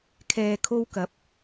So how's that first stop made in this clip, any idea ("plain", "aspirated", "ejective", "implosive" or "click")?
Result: aspirated